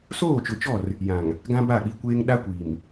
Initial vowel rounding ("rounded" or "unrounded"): rounded